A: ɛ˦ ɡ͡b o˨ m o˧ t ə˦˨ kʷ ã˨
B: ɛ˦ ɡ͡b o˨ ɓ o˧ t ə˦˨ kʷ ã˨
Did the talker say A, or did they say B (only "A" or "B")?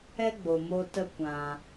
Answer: A